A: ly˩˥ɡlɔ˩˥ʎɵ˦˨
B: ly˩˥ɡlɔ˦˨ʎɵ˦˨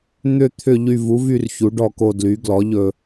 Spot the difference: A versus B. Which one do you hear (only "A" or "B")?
A